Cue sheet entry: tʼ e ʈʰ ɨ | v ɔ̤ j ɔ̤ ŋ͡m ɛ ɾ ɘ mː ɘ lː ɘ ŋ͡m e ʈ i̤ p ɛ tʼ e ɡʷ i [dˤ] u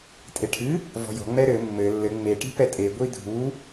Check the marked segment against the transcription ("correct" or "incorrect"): incorrect